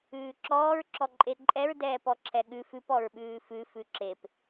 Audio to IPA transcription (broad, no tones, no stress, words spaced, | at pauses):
ʉːǁɔːɹ ǁɔǃʼeǃʼɛɹ dɛːpɔǁʰɛɠʉ fʉp ɔɹɓʉːfʉ fʉǁep